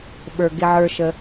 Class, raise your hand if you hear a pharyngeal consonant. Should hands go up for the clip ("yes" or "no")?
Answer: yes